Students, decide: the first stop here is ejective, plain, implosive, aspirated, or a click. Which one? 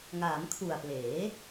aspirated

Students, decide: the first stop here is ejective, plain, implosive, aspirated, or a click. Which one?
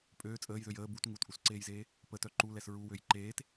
ejective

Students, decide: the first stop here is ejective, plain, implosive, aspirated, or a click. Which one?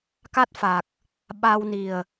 plain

